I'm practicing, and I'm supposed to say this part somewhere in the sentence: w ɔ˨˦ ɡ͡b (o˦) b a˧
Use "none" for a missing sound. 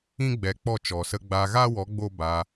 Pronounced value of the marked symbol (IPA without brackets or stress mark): o˦